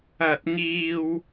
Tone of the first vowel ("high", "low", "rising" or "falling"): high